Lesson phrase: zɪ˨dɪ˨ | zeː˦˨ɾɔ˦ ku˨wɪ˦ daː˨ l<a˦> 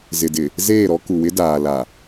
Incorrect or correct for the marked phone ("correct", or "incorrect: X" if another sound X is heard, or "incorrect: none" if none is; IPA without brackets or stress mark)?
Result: incorrect: a˨